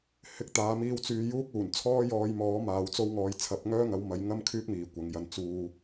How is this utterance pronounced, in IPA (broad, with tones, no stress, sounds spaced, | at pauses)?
h ɪ˨˥ k̚ t̪ aː˨˧ m iː˧ w t͡s yː˧ j uː˥ k̚ uː˨˩ n t͡sʰ ɔː˥ j ɔː˧ j m ɔː˨˥ m aː˨ w t͡s o˧ w ŋ ɔː˨ j t͡sʰ ɐ˨˥ p̚ ŋ œː˥ ŋ ɐ˨˥ w m ɐ˨˥ j ŋ ɐ˥ m kʰ yː˥ k̚ m iː˨ kʷ ɐ˨˧ ŋ j ɐ˧ n t͡s uː˧